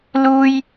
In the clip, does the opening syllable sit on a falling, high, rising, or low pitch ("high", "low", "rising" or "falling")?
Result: high